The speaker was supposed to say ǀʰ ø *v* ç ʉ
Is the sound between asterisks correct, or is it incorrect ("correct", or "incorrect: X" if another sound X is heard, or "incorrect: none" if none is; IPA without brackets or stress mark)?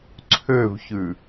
correct